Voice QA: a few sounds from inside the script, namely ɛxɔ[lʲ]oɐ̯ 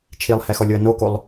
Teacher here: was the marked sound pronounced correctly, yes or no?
yes